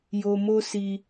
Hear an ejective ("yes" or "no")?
no